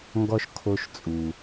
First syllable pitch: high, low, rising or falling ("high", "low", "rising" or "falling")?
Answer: high